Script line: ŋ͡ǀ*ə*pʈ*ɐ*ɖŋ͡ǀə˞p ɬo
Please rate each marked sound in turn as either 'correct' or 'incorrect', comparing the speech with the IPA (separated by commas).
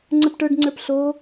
correct, incorrect